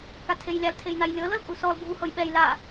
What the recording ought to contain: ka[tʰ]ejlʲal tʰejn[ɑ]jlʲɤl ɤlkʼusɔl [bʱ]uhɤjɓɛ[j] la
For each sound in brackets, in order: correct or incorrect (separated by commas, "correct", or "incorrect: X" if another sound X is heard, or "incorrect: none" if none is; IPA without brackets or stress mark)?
correct, incorrect: a, correct, correct